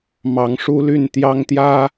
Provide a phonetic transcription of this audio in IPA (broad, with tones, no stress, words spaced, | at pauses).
mɑ˨˦ŋʂu˦ly˥˨n t̪jɑ˦ŋt̪jä˦